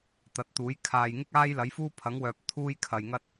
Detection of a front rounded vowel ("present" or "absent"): present